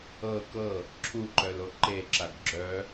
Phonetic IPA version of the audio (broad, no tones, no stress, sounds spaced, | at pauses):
ɤ k ɤ | ǁʰ u ǃ œ l o ǃ e ǁ a ɡ ɡ͡ǁ œ